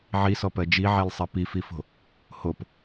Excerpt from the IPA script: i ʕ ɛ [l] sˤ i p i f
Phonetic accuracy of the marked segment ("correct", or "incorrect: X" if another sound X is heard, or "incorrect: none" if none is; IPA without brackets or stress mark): correct